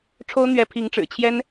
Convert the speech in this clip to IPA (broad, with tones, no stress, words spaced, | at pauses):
ʈ͡ʂʰo˥ʊ̯n̪ɥɛ˧˥ pʰi˧˥ŋʈ͡ʂɻ̩˨˩t͡ɕʰjɛ˥n